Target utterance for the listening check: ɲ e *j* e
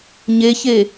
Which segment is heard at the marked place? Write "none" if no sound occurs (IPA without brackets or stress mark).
ç